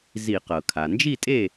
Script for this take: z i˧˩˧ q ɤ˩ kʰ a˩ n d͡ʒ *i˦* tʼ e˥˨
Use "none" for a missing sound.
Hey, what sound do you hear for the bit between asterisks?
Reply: i˥˨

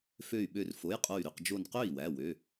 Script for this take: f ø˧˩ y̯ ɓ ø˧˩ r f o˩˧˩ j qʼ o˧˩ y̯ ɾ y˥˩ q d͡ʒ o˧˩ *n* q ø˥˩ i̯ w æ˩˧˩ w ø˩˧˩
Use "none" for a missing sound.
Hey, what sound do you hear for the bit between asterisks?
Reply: n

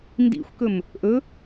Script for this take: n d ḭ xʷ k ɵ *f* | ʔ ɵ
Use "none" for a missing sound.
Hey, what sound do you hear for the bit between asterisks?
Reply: m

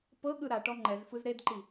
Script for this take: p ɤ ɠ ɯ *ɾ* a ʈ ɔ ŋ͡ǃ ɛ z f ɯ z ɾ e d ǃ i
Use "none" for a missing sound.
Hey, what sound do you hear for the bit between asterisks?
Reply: ɾ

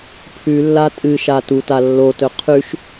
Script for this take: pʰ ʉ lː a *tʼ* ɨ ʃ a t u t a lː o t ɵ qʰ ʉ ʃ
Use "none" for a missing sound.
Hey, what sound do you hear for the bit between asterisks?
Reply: tʼ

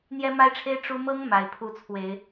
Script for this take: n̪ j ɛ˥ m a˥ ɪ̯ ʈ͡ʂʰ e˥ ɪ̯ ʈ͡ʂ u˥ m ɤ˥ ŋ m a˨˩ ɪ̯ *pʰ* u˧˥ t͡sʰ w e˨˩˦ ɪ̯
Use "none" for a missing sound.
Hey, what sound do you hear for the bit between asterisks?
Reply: pʰ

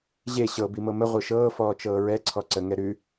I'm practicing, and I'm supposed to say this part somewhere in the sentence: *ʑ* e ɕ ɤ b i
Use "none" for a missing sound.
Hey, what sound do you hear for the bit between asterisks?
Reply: ʑ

